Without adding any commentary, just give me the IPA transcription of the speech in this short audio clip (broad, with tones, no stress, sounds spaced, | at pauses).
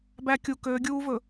b æ˦ kʲ u˨ k øː˨˦ ɡʲ uː˦ v ɵ˨